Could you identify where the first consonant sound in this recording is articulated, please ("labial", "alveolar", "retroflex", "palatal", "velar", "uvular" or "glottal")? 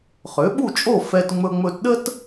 uvular